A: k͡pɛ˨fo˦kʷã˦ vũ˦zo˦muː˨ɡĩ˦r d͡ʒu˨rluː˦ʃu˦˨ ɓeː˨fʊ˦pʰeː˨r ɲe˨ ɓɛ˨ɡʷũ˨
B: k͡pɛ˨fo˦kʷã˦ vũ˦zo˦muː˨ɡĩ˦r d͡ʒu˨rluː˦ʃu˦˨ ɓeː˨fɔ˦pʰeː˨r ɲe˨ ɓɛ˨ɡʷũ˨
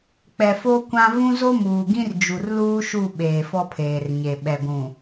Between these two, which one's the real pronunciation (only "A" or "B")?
B